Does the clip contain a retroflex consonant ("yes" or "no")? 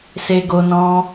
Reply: no